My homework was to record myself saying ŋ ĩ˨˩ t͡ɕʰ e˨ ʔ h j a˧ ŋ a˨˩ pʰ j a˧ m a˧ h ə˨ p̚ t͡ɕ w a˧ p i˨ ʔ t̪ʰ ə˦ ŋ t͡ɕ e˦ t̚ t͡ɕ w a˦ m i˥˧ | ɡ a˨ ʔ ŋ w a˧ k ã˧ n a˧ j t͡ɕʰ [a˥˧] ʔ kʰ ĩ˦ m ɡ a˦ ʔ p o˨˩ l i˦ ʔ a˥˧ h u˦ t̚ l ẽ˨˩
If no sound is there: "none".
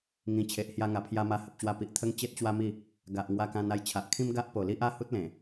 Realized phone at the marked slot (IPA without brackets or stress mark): a˨